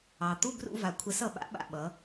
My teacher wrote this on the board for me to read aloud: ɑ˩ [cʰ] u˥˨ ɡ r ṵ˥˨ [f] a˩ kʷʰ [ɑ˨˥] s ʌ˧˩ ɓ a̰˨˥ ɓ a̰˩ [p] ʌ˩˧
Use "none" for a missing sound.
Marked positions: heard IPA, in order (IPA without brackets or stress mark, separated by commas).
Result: t̪, v, ə˨˥, ɓ